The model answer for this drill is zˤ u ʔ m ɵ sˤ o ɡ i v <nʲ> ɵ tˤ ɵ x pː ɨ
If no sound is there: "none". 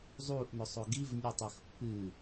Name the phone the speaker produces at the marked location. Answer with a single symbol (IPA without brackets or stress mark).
nʲ